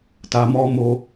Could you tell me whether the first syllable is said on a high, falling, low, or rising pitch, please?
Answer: low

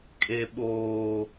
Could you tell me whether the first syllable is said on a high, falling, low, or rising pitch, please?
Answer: low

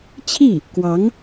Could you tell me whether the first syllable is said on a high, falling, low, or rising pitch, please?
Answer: falling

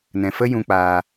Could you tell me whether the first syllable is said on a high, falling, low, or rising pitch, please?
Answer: low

